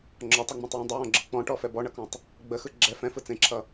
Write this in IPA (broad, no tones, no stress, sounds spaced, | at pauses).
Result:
ŋ͡ǁ ɔ tˤ ɛ ŋ͡m ɔ̃ tˤ w ɛ̃ dˤ ə w ɔ̃ ɡ͡ǁ ɯ k͡p ɔ̃ ʈ ɔ f ɛ b ɔ ɳ ʌ k ɔ̃ tˤ | ɡ͡b ə x ɯ ɡ͡ǁ ɛ f ɛ̃ f ɯ t͡s ẽ ǁʰ ʌ